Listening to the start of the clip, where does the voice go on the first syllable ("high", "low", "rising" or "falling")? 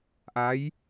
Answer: rising